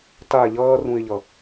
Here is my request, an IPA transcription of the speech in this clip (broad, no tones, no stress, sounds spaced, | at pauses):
t a ʎ ʌː r ũ ɪ̯ ʎ ʌ